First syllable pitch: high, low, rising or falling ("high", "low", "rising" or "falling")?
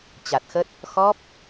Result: low